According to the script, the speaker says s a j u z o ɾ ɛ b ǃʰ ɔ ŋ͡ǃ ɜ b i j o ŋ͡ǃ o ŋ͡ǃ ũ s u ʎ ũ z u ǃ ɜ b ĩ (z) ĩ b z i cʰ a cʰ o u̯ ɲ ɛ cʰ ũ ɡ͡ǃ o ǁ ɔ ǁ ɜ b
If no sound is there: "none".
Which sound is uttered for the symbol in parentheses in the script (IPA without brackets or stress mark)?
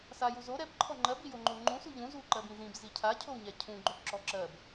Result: z